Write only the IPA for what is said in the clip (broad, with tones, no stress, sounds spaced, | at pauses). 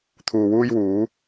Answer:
t̪ʰ uː˨ w uː˧ j w uː˨˧